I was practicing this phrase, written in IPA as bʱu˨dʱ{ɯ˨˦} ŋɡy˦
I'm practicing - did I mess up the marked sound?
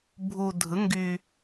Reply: no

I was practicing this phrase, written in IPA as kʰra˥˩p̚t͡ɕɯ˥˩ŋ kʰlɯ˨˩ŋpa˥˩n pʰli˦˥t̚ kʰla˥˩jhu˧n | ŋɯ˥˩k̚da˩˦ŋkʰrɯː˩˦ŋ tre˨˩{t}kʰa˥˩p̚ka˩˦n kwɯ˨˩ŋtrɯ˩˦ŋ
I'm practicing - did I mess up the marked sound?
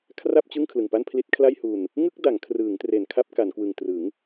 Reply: yes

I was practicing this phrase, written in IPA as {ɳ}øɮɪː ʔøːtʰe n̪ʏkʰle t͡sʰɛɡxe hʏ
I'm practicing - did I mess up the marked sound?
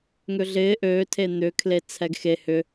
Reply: yes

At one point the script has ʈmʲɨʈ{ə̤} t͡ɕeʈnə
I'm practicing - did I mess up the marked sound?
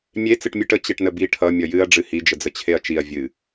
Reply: yes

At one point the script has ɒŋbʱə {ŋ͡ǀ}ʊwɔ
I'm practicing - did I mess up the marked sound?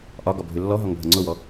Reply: no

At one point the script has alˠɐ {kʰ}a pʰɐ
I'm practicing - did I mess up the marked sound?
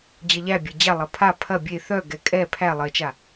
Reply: yes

